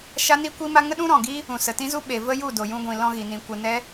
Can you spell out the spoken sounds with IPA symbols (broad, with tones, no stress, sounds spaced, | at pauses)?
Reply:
ʃ a˦ n i˦ kʷ i˦ m a˦ ŋ ə˦ ɗ ũ˦ ɾ ɔ̃˨ ɡ i˦ | ũ˨ s ə˨ t ĩ˦ z u˦ ɓ e˨ v ə˦ j u˦˨ d o˨ j ũ˧ ɡʷ ĩ˨ l ɔ̃˧ ɣ i˨ n ĩ˨ kʷ ə˨ n ɛ˦